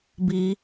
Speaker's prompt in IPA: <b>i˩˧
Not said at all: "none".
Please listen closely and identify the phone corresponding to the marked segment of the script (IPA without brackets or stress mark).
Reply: b